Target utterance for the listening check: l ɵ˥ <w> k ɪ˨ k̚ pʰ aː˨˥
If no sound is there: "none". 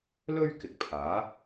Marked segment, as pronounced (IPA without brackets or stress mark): ɥ